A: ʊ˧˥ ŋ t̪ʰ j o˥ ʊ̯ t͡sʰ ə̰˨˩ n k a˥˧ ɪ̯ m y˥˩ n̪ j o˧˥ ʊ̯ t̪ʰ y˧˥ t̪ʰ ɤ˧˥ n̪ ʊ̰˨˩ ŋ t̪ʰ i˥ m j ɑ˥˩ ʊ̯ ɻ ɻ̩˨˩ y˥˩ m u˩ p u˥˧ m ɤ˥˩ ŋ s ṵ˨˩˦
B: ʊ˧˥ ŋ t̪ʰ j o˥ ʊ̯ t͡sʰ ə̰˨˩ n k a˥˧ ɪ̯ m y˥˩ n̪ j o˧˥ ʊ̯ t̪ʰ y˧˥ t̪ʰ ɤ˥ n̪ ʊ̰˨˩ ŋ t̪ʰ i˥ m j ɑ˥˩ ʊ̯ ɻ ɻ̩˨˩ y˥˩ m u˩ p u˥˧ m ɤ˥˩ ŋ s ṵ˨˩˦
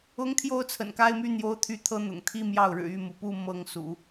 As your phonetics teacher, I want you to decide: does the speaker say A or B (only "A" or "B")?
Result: A